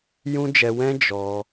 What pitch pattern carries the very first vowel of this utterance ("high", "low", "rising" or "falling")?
high